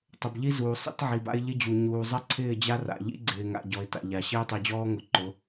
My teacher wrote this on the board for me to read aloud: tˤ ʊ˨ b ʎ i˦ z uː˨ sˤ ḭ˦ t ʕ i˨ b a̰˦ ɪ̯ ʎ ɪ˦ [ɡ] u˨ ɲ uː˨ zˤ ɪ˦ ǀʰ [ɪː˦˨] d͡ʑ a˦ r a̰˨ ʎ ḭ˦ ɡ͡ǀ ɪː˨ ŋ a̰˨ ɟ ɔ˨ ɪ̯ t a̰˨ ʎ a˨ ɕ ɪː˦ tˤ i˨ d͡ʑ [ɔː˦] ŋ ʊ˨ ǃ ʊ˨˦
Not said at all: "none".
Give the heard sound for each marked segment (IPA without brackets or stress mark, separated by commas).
d͡ʑ, ɪː˦˨, ɔː˦